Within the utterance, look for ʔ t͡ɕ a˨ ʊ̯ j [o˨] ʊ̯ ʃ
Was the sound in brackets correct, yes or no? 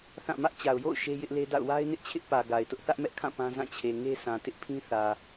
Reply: no